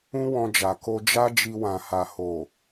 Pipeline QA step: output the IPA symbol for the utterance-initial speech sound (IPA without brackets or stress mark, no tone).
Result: ũ